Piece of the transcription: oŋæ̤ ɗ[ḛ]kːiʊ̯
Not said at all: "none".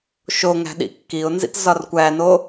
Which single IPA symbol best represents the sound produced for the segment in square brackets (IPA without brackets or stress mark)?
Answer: ḭ